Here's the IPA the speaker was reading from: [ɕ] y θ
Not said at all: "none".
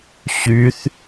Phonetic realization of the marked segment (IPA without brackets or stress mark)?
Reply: ɕ